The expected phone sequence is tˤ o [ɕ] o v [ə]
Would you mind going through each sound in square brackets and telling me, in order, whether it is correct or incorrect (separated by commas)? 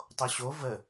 correct, correct